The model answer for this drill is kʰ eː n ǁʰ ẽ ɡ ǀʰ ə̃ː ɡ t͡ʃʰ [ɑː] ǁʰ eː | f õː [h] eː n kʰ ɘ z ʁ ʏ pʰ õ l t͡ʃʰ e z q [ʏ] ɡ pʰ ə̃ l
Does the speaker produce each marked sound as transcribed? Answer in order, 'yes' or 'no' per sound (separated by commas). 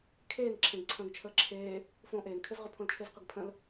no, no, yes